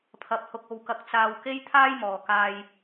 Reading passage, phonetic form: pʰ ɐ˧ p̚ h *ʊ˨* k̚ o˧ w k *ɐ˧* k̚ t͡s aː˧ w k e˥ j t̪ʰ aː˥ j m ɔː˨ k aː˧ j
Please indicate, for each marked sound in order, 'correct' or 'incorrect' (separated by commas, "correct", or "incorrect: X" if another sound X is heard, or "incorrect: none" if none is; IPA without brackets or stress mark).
incorrect: ʊ˧, correct